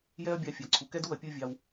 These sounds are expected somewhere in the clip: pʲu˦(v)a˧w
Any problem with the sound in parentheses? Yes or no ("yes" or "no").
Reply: yes